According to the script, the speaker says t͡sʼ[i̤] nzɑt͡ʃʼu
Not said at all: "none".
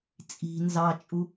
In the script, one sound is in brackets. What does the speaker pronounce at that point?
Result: i̤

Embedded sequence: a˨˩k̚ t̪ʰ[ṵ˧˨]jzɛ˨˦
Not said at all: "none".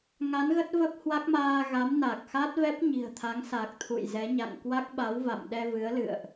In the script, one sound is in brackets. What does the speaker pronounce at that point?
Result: ṵ˧˨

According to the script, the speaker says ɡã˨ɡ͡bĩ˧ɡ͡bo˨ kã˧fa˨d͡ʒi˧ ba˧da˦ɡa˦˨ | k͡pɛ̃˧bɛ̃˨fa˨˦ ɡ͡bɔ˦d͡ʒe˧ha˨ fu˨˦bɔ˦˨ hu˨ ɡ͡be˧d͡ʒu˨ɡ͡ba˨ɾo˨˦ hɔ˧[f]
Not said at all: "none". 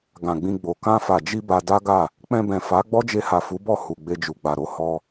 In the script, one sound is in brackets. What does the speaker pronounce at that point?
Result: none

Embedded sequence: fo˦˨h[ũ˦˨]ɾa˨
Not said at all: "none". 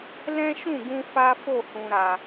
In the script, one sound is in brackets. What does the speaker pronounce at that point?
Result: ũ˨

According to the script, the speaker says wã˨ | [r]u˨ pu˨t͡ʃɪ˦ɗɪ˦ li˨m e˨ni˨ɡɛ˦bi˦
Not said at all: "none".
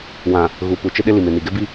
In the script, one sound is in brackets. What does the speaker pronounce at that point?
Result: ɣ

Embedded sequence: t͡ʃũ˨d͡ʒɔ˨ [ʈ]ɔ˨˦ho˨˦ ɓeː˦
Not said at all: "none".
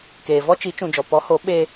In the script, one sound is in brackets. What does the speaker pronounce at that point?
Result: p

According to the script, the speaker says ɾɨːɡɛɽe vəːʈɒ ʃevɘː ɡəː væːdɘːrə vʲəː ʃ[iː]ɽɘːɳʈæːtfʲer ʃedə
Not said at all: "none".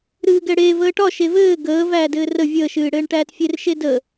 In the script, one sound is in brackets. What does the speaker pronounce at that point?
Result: ɨː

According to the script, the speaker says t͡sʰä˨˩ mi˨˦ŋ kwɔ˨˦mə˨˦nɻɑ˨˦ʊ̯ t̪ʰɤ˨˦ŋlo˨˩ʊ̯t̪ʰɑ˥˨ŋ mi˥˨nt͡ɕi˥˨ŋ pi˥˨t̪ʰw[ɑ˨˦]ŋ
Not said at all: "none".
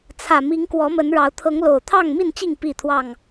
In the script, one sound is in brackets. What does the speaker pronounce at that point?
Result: ɑ˥˨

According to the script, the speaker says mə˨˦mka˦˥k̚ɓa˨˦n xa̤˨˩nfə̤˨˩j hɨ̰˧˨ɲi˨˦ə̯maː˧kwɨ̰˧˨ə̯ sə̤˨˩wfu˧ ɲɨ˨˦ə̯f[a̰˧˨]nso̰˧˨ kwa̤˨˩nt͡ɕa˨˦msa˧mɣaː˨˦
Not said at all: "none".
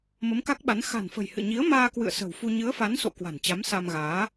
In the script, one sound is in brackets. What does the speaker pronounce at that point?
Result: a˨˦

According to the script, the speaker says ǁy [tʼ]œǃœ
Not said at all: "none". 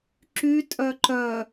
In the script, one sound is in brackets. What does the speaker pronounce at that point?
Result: tʼ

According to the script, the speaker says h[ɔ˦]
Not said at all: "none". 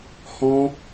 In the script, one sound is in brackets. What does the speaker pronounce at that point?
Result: ɔ̃˦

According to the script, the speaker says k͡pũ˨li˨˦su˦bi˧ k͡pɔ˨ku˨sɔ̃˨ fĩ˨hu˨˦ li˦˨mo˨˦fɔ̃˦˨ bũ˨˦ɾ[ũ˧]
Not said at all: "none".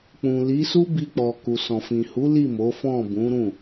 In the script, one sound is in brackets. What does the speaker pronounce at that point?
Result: ũ˦˨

